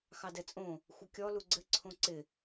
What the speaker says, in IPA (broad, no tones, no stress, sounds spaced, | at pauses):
x ɑ d ɛ t͡sʼ õ | xʷ ɘ kʲ ɔ l u ɡ͡ǀ ɘ ǀʰ õ ǀ ɪ